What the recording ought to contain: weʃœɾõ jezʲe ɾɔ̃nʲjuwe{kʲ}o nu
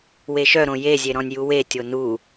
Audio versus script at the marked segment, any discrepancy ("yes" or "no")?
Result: yes